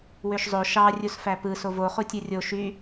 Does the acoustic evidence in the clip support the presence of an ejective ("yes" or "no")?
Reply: no